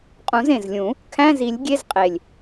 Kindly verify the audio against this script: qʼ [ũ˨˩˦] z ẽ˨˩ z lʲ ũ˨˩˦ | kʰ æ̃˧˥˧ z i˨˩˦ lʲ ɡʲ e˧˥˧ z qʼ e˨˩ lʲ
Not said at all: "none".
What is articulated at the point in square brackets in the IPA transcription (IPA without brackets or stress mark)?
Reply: ũ˨˩˦